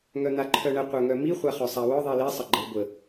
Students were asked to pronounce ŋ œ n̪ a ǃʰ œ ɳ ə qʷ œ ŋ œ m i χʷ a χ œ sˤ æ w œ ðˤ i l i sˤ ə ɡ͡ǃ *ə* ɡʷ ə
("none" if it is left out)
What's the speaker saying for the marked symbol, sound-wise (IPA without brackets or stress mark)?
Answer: ə